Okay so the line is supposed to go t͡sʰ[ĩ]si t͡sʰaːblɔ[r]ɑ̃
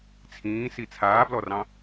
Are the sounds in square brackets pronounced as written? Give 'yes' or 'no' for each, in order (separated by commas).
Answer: no, yes